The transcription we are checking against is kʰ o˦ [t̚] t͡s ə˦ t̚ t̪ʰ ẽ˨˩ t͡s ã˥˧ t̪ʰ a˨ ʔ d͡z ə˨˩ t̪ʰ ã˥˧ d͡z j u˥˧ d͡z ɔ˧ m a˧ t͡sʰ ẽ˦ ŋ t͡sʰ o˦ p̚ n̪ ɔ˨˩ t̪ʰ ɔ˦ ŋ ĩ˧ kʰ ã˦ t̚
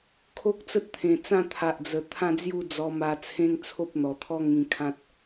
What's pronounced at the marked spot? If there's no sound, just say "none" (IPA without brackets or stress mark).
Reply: k̚